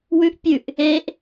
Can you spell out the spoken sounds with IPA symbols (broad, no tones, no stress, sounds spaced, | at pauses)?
w ʉ ʔ pʲ ʉ ʔ | e ʔ